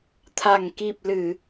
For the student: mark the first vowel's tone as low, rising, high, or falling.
low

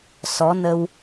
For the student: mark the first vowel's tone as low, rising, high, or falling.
rising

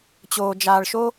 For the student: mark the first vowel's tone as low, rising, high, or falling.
low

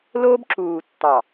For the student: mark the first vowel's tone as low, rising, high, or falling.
high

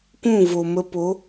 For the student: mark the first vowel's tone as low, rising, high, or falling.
falling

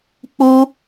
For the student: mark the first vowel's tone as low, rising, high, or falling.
high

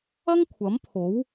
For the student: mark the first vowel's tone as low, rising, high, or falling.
high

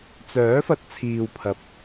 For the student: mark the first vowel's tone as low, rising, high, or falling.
rising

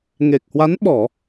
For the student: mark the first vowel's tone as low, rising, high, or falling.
low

